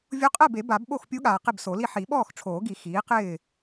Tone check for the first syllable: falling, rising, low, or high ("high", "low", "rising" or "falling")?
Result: rising